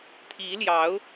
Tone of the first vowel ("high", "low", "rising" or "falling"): rising